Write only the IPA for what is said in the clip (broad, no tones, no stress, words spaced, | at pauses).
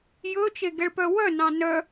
jɵ t͡ʃeɡɛɭpœwœ nɑ̃nœ